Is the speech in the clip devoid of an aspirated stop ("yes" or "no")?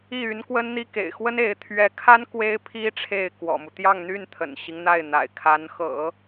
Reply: no